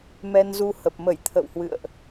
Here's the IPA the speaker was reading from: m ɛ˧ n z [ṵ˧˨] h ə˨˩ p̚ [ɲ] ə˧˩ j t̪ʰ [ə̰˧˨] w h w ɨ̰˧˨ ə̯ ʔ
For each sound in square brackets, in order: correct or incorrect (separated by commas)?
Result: incorrect, incorrect, correct